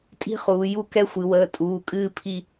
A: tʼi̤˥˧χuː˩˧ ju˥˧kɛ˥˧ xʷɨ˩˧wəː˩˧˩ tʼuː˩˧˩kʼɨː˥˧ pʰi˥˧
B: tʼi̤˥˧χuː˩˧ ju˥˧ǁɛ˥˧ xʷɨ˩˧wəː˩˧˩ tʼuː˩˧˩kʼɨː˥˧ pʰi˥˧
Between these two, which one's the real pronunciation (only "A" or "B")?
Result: A